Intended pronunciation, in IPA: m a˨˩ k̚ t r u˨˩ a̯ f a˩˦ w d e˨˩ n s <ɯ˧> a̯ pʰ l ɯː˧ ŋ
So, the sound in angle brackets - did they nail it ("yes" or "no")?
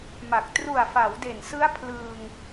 no